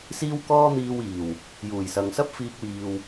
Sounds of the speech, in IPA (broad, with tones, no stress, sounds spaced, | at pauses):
s iː˥ w k ɔː˥ n̪ iː˧ w iː˨˩ w | j uː˨˩ j s ɐ˨ ŋ s ɐ˥ p̚ f iː˥ k̚ w iː˧ w